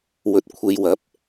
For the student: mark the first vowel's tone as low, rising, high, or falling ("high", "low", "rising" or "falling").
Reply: low